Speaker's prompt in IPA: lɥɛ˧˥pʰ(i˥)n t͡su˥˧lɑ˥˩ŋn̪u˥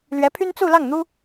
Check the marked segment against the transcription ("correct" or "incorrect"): incorrect